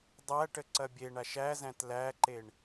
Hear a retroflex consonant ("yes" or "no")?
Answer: yes